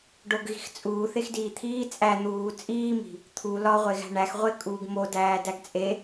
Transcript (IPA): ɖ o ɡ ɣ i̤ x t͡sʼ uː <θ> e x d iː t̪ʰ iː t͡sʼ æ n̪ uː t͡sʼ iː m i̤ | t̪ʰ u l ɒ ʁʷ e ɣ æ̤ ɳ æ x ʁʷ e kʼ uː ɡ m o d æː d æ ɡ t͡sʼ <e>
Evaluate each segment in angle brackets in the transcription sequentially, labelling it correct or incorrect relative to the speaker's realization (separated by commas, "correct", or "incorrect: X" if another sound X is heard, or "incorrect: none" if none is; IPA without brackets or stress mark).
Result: correct, correct